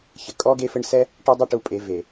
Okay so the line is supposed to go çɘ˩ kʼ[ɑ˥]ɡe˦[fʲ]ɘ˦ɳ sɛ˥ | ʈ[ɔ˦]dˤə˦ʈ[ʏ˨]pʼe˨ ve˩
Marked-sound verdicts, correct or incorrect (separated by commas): incorrect, incorrect, correct, incorrect